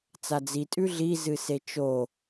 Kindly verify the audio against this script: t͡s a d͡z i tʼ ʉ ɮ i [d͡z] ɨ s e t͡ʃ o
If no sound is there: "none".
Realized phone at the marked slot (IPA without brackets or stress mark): z